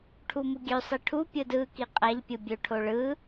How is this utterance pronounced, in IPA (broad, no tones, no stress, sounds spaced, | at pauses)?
ʈʰ u m u ɡʲ ø sˤ i ʈʰ u pʲ ɯ d ɯ k i qʼ æ ʎ pʲ ɯ bʲ ø ʈʰ o ɭ ɯ